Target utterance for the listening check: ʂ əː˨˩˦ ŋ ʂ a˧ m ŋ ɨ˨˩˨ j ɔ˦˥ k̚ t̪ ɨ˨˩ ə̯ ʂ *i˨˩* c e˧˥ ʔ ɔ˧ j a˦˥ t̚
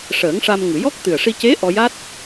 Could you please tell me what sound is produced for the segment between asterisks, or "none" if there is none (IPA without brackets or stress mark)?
i˧